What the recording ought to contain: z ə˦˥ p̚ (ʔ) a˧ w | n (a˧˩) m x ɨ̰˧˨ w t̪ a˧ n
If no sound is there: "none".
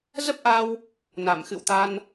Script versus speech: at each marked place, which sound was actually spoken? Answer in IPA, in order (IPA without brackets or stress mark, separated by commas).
ʔ, a˧˩